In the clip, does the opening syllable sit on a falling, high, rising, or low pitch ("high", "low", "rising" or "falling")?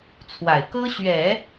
low